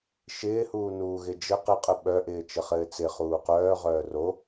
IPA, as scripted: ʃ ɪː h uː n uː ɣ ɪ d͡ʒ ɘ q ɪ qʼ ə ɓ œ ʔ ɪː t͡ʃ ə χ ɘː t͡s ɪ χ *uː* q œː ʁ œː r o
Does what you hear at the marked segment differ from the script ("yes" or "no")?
no